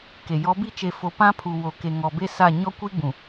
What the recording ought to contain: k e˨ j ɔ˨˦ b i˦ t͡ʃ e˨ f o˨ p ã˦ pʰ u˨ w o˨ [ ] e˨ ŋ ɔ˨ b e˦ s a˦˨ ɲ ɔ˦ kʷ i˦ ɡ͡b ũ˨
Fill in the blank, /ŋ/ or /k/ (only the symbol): k